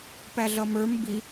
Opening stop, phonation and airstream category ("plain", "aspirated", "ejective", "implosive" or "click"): plain